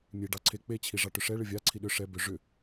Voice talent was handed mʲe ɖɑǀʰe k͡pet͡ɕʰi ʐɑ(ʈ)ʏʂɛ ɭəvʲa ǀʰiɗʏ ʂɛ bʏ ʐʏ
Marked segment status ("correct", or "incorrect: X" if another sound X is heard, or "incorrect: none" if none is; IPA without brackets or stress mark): correct